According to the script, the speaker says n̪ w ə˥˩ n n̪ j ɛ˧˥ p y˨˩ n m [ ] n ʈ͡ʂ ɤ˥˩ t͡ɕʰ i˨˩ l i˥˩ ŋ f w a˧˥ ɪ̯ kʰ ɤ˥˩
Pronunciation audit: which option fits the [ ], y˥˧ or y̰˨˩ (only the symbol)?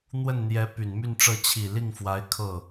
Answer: y˥˧